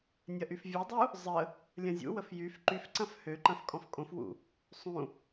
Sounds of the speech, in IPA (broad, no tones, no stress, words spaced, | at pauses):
nʲɐʔyfvʲodˤu | zˤə | lʲɐ̃zʲṵwəf jyf ǃyfǀɐ̃f høǃɐ̃f kʼɔ̃fkʼõfwṵ | sˤũ